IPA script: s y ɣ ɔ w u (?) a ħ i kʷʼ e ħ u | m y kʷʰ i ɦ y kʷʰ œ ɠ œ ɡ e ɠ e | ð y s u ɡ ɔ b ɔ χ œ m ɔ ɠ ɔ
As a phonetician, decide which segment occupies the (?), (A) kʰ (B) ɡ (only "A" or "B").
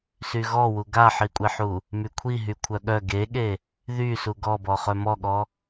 B